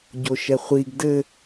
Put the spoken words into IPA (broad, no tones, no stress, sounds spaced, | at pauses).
ɟ o ʃ ɛ χʷ i ɡ d ɘ